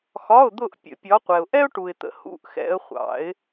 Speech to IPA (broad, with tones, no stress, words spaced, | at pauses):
xɒ˧˥˧ʊ̯d̪ʊ˦˨ʔ pʲə̰˨˩˦pʲɒ˨˦qʷɛ˨ʊ̯ ʔɛ˥ʊ̯ʈu˨ɪ̯t̪ə̰˨ hṵ˧˥˧ʔ xɛ̰˨˦ə̯χʷɑ̰˨˩˦ɪ̯